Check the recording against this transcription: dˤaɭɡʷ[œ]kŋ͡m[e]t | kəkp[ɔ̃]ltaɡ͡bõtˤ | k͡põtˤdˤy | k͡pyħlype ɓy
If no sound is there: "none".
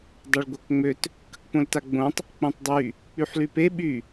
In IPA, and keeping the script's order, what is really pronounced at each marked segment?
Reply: œ, ø, õ

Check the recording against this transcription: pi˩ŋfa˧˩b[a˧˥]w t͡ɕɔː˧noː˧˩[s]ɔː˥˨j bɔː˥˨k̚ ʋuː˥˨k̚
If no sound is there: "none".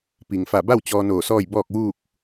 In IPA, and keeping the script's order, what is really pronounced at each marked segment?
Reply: a˥˨, s

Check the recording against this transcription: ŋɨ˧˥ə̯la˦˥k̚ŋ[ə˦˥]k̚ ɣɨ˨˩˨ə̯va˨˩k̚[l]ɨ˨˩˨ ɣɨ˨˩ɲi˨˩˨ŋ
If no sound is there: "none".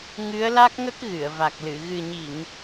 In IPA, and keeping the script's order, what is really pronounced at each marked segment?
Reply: ə˦˥, l

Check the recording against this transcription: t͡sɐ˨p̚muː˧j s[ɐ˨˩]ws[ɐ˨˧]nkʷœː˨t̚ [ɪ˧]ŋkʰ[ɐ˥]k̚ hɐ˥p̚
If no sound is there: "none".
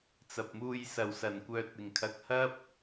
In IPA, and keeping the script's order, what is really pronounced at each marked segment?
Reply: ɐ˨˩, ɐ˨˩, ɪ˨˩, ɐ˨

